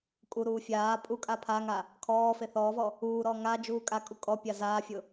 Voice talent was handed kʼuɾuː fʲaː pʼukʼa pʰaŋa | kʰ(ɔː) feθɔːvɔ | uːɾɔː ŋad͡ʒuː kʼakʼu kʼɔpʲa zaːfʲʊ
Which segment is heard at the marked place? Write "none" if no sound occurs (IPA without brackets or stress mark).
ɔː